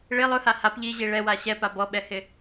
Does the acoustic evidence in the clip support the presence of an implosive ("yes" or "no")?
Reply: yes